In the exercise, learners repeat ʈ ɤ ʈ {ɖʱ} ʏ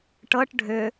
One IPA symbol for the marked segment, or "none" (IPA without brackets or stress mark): ɖʱ